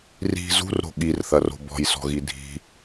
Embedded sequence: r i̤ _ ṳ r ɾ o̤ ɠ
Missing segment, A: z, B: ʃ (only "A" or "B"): A